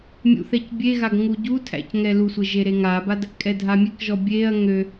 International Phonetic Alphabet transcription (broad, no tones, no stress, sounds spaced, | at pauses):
mʲ ṵ θ ɛ c bʲ e ɣ a ɡ ŋ u ɟ u tʰ æ̰ c ŋ ɛ l u sʷ e ʒ e ɾ e ŋ a b a d | kʼ ɛ dʱ a mʲ e k ʒ ɔ bʲ e ɐ̯ ŋ ø